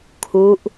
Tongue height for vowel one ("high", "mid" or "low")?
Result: high